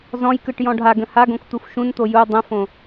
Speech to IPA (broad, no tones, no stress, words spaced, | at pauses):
zɔ̃jkɯʈ jɔ̃ɖʱaɡə̃ haɡõk t̪ufʃũnt̪o ju dˤə̃fõ